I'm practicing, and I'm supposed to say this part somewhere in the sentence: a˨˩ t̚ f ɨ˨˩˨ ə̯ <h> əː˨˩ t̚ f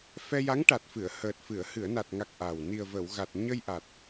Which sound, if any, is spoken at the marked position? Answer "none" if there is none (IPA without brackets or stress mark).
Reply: h